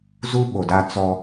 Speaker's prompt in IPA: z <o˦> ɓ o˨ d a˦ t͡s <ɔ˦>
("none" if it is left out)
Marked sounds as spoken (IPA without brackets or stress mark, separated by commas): u˦, ɔ˦